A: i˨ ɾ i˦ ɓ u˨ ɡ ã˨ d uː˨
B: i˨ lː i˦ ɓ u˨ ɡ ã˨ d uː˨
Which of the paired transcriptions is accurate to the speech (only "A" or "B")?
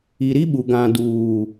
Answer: A